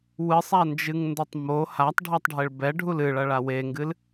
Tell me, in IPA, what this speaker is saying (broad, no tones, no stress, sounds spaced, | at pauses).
w ɨ sˤ a n d͡ʒ ɨ ŋ n d o tˤ m o h a tˤ ɖʱ ɛ tˤ ɖʱ e ɭ b ɛ ɖʱ u l ɨ ɭ ɐ ɭ a w e ŋ ɡ ɨ l